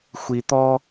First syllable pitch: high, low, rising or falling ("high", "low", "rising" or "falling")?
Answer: low